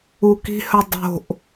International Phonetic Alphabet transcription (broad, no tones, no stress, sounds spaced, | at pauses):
u k i̤ h œ dˤ o̤ ʔ